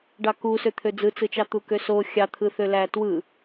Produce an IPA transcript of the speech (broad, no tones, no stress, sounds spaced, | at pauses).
ɖ ɑ k u s ø t̪ʰ ø d͡z ɯ t͡s ɯ t͡ʃ ɑ t̪ u k ø s o xʲ ɑ t̪ʰ ɯ θ ø l æ t w ɯ